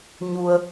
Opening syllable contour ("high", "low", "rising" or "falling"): low